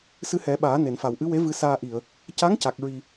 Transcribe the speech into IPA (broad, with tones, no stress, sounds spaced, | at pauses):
s ɨ˧ h ɛ˨˩˦ ɓ aː˨˩˦ n e˨˩˨ n f a˨˩ w ʔ ɨ˧˥ w e˧˥ v ɨ˧˥ s aː˧ ʔ i˨˩˨ ə̯ | c a˧˥ ŋ c a˨˩ k̚ ɹ i˨˩